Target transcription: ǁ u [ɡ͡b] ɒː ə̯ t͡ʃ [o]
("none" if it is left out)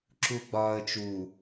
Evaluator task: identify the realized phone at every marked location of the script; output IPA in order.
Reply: ɡ͡b, u

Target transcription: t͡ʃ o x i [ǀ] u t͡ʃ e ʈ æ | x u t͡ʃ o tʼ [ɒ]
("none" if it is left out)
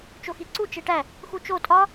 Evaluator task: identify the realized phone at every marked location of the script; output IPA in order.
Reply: ǀ, ɒ

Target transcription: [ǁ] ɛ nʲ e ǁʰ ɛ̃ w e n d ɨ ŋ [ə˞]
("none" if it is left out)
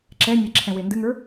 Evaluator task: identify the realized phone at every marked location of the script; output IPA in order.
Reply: ǁ, ə˞

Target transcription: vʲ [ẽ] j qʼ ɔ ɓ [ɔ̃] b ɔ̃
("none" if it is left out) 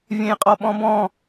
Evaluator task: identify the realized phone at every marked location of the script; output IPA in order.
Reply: ẽ, ɔ̃

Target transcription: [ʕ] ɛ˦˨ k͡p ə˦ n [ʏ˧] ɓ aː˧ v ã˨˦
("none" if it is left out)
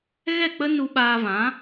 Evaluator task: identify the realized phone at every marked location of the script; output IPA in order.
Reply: ɣ, u˧

